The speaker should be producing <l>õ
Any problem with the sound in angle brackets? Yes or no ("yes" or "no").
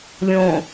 yes